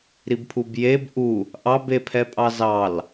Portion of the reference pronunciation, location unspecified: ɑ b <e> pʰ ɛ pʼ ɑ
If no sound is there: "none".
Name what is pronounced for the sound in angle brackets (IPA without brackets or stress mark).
e